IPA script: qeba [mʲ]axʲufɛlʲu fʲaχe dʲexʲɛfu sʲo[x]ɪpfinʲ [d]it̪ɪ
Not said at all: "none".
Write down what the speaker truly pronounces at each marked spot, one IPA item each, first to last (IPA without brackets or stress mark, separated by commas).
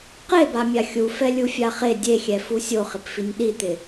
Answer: mʲ, χ, ɗ